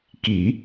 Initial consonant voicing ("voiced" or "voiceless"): voiceless